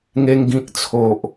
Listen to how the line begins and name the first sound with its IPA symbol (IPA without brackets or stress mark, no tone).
ŋ